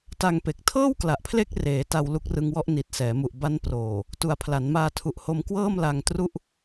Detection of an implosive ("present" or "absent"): absent